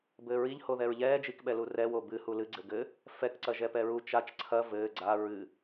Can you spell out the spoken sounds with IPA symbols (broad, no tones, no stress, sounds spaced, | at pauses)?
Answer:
b ɘː ɹ i ʎ h o ð ɛ ɹ ʎ ɛː d͡ʒ i k ɓ ɛ l u r ɛ w o b ɨ h u l ɨ ɡ͡ǀ ɘ ɡ ɘ | f ɛ k ǀ ɐ ʒ ɛ p ɛ ɹ u t͡ʃ a t͡ʃ ǀʰ ɐ v ɘː ɡ͡ǀ a ɹ ɨ